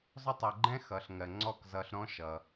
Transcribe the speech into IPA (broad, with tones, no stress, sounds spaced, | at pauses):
zˤ ʊ˦ tˤ ɛ˧ ɡ͡ǃ ɛ̃˦ x ʌ˧ ɬ ŋ ɜ˧ ŋ͡ǀ ɔ˦˨ k z ʌ˧ ɬ ɾ ɔ̃˦ ʃ ʌ˧